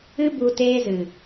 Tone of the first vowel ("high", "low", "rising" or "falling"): high